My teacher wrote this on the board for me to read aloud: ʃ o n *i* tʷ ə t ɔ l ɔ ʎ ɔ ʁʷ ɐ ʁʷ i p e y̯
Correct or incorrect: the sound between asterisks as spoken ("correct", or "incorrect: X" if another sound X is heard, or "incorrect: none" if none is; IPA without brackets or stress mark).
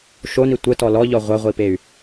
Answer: correct